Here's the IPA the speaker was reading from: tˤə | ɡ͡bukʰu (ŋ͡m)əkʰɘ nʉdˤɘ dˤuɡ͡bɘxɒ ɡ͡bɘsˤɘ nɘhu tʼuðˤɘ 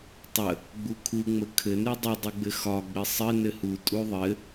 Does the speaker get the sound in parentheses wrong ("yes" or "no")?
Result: no